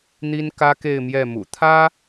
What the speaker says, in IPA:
n̪i˥nkä˥ke˥˧ɪ̯ mjɛ˥˩mṵ˨˩ t̪ʰä˥

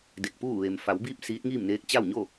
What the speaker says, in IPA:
de˧˩k̚puː˥˨ ʋeː˩mfa˩˧wbiː˥˨p̚ siː˧˥t̚ŋiː˥˨mneː˧˥k̚ t͡ɕa˥˨wɲo˥˨

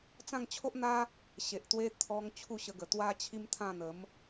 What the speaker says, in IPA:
t͡sã˥˧ŋt͡ɕʰo˦ʔn̪a˦ | ɕe˨ʔt̪we˧ t̪ʰɔ˧ŋ t͡ɕʰu˥˧ɕə˧ɡə˨˩ t̪wa˦t͡ɕʰi˦mt̪ʰã˥˧n̪ə˨˦m

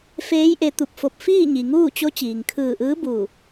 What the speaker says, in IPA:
feː˧˥jʔe˧ t̪u˧˩p̚fo˧˩p̚ fiː˥˨ɲi˩ŋuː˥˨t͡ɕo˧˥ t͡ɕiː˩ŋkʰɯː˧˩ʔɯː˧˥ bu˧˩

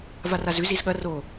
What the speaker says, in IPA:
varazʉ zizɠɐ ro

